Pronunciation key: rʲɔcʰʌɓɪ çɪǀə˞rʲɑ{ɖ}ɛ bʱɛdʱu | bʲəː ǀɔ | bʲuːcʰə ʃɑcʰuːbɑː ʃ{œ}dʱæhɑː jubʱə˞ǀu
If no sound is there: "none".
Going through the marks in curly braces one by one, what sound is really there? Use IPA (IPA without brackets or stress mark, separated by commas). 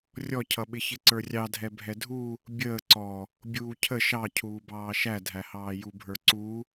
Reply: dʱ, æ